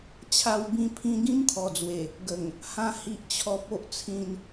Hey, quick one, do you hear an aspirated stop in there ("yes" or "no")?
yes